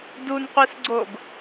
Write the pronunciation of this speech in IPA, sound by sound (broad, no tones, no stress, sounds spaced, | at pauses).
d u n qʷ i s ɡ͡ǀ o ɡ